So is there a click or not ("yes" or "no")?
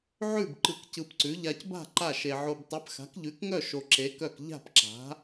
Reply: yes